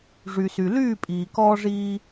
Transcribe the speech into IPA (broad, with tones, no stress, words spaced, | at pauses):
ʐy˩sy˩ lyː˥˩ pʼiː˩ kɔː˧ʐiː˧